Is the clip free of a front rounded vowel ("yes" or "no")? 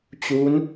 yes